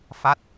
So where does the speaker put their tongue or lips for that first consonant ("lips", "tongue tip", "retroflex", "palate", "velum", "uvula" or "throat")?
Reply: lips